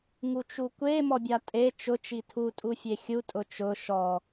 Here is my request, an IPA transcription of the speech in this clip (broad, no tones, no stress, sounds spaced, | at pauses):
ŋ u t͡ʃ u kʷ e m ɔ bʲ a tʼ e t͡ʃ ʊ t͡ʃ i tʰ u tʼ u fʲ e xʲ u tʼ ʊ t͡ʃ ʊ ʃ ɔ